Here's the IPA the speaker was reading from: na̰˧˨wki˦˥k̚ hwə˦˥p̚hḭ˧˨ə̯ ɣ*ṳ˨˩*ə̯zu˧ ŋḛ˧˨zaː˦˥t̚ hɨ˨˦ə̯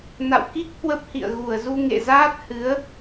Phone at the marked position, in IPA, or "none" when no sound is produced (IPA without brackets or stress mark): u˧˩